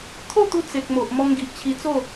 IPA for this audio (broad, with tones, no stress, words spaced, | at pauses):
t̪ʰo˥˧t̪u˧ t͡se˨k̚mo˨ʔ mɔ˧ŋɡi˨ʔt͡ɕʰi˧t͡so˥˧